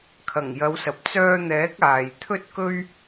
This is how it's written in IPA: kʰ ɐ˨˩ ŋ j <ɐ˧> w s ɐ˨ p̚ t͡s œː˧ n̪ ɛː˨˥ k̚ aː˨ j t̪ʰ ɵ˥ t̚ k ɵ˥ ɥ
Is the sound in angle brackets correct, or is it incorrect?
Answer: incorrect